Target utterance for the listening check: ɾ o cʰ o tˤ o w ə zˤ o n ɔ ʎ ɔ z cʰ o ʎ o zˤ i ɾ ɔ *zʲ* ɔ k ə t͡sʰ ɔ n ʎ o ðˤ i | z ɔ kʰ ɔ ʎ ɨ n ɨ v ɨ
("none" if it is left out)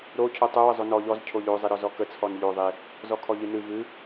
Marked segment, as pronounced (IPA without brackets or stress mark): z